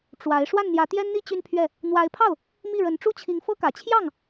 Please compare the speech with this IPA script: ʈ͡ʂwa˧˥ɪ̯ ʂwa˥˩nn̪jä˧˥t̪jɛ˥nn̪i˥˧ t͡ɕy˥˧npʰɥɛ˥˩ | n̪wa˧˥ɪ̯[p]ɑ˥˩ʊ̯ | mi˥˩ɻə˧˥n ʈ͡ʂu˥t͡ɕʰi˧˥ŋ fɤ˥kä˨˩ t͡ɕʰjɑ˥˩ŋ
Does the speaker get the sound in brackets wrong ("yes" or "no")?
yes